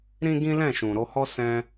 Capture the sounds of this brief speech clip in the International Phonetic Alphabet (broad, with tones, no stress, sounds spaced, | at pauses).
ɾ ĩ˦ ɡ ĩ˦ l ɛ̃˦˨ ʃ ũ˨ ɾ o˧ h ɔ˦ s ɛ̃˧